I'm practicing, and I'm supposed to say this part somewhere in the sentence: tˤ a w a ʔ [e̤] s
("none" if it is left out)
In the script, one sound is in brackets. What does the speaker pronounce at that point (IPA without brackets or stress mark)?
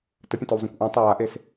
e